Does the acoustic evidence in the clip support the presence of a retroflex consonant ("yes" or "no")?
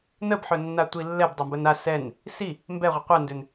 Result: no